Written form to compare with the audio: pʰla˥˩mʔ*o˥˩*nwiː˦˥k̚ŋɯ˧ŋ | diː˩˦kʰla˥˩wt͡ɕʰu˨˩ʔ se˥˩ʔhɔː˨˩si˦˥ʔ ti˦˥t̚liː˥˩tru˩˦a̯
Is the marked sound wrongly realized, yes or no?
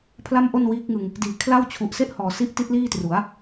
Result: no